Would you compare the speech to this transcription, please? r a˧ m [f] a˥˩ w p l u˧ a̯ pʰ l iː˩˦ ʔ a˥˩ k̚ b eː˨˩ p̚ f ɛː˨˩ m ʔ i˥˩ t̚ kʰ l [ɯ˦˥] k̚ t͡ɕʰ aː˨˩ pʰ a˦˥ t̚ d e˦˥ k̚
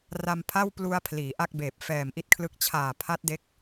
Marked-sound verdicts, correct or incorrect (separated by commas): incorrect, correct